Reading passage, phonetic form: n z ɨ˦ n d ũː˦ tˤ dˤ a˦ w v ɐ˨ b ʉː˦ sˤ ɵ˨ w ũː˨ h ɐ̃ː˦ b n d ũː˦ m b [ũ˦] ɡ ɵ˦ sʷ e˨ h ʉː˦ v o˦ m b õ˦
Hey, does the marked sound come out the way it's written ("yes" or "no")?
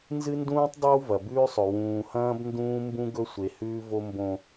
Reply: yes